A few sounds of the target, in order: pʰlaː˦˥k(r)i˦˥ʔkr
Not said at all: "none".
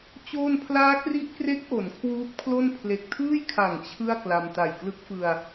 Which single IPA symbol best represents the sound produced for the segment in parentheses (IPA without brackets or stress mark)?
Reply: r